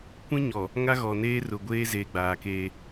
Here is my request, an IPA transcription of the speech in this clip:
kʷ ĩ˦ ɲ ɔ˨ | ŋ a˦ ɣ ɔ˨ n eː˦ r ʊ˨ ɡʷ eː˦ z eː˨ ɡ͡b aː˨ k eː˦

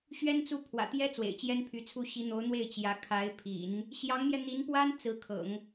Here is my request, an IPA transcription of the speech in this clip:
ɕ ɥ ɛ˥ n t͡s u˥˩ pʰ w ä̰˨˩ t̪ j ɛ˥ t͡s w ḛ˨˩ ɪ̯ t͡ɕ j ɛ˥ n pʰ y˧˥ t͡sʰ u˥˩ ɕ i˧˥ n̪ o˧˥ ʊ̯ n̪ w e˥˩ ɪ̯ t͡ɕ j ä˧˥ kʰ a˧˥ ɪ̯ pʰ ḭ˨˩˦ n | ɕ j ɑ˧˥ ŋ m j ɛ˧ n̪ i˧˥ n p w a˥ n t͡s ɹ̩˧˥ kʰ ɤ̰˨˩˦ ŋ

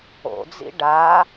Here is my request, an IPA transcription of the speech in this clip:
o̰ d͡z ḭ ɖ a

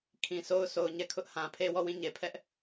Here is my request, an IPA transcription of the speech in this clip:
kʰ ĩ˨ sʰ o˦ ʊ̯ s o˨ ʊ̯ ɲ ɛ˦˨ kʰ ʊ˦ ʔ h ã˨ pʰ e˦ w ɔ˦˨ w ĩ˦˨ ɲ e˨ pʰ ɛ˦ ʔ

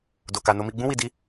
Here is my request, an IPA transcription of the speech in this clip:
d o˨ k a˨ n o˧ m i˧ ɡ͡b ũ˧ w i˨ d i˧

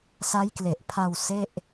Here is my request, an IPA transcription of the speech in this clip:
s a˦˥ j k l e˨˩ ʔ pʰ a˧ w s e˥˩ ʔ

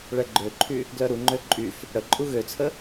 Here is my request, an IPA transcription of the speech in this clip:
ɭ ɛ ɡ͡ǃ ø ǃʰ y | ɡ l œ ɾ u ŋ͡ǃ ø ǃʼ y f | ɽ ə ǃʼ u ɣ ø t͡sʰ ə

